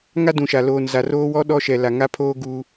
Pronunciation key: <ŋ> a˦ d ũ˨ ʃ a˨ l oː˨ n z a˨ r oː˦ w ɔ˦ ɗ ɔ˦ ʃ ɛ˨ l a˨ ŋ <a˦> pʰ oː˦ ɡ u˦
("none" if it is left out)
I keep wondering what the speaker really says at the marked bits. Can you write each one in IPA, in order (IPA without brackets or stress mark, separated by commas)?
ŋ, a˦